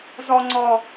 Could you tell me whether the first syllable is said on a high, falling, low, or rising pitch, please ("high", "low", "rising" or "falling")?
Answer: high